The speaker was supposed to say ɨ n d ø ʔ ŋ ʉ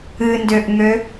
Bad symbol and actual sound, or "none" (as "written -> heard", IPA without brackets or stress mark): ʉ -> ø